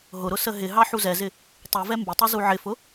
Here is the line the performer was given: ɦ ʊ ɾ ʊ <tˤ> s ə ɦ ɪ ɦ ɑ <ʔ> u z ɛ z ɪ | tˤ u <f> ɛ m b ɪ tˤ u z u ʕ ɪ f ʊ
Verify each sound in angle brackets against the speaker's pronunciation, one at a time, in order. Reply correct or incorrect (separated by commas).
incorrect, incorrect, incorrect